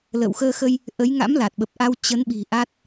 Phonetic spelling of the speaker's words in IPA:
l ə̰ː˧˨ w x əː˧ x ə˧ j | ʔ ə˨˦ j ŋ a̰˧˥ m l a˨˩ t̚ ɓ ə˨˩ p̚ ʔ a˧ w t͡ɕ ə˨˦ n ɓ i̤˨˩ ʔ a˦˥ t̚

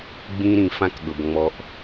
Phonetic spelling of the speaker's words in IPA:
ɡ͡b ĩ˧ ɾ ĩ˨ f ã˧ k ɠ ɤ˨ b ŋ͡m ɔ˧ ʔ

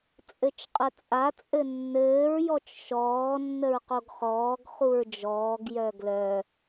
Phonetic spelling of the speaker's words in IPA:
t͡sʼ ɘ t͡ʃ qʼ ə t͡sʼ a t͡sʼ ɘ nː ɘː ɹ j ɔ t͡ʃ ʃ ɔː nː ə ɹ q o ɡ χ ɔː ɡ χ u ɹ d͡ʒ ɔː ɡ j œ ɡ l œ

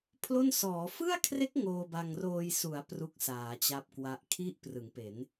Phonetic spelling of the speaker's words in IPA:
pʰ l o˥˩ n s ɔː˩˦ f ɯ˥˩ a̯ kʰ r e˦˥ k̚ ŋ oː˧ b a˧ ŋ r oː˧ j s u˩˦ a̯ p r u˥˩ k̚ s aː˩˦ t͡ɕ a˦˥ p̚ k w a˦˥ ʔ kʰ i˦˥ ʔ p r ɯ˩˦ ŋ p e˩˦ n

